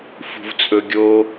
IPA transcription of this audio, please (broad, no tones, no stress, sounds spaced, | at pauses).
f ṳ v t͡sʼ ɵ ɡʲ o